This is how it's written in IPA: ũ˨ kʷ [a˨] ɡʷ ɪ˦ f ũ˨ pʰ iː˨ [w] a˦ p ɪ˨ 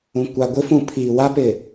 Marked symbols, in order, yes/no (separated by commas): yes, yes